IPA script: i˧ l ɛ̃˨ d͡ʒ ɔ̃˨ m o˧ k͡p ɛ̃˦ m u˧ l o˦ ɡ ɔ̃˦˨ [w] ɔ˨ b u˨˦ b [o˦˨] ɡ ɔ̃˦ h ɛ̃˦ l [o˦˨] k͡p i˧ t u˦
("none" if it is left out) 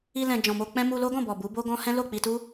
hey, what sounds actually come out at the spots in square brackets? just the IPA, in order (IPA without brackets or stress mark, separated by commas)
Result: b, o˦, o˦˨